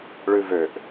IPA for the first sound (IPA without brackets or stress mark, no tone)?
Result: ɭ